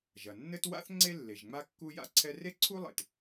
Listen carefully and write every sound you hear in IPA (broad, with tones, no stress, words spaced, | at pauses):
ʒɐ˩nːɘ˥t wa̰˥θ ŋ͡ǀe˥lːe˩ʒ ŋ͡ma˥kːu˥ja̰˥ǀʰɛ˥ re˥ ǀʰu˥lˠḛ˩t